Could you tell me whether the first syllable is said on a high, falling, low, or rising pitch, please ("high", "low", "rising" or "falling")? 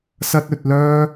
high